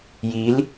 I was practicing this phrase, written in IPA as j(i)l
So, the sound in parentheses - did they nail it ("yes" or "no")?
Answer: yes